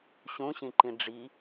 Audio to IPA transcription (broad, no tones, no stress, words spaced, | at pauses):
ɕũɕĩǃĩ ɖ͡ʐi